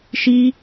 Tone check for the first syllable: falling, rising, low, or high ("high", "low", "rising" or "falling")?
high